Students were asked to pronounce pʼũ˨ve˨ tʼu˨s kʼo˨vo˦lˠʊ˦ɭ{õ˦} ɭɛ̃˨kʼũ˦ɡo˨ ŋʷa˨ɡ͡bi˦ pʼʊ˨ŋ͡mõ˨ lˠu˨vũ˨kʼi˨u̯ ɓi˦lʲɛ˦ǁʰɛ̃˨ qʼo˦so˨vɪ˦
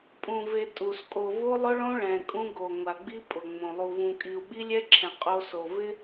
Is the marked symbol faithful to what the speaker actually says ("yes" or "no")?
yes